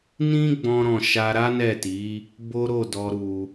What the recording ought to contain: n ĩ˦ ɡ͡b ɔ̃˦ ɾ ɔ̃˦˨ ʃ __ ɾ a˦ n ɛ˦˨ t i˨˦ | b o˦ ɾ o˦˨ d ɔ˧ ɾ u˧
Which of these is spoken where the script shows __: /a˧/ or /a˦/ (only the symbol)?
a˧